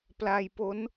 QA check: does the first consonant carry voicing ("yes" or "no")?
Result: no